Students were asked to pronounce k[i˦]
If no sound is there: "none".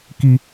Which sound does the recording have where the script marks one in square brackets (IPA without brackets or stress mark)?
i˦